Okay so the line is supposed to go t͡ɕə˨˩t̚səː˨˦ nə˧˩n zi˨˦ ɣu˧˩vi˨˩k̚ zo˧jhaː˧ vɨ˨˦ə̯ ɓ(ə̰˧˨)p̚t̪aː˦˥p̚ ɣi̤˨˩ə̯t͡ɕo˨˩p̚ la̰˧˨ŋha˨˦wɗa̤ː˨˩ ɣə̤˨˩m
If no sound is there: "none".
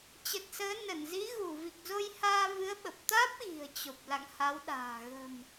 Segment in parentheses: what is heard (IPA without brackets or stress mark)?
ə˨˩